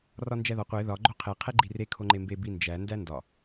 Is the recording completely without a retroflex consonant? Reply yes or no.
yes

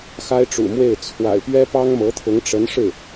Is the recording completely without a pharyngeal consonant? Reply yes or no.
yes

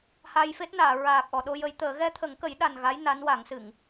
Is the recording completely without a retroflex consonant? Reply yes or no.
yes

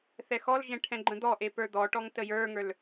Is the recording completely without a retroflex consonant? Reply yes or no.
no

